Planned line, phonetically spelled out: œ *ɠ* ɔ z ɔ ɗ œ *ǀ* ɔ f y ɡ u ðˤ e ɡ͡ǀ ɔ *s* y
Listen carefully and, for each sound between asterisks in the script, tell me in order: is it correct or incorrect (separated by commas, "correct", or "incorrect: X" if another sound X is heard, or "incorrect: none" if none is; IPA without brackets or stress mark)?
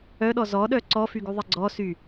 incorrect: ɗ, correct, correct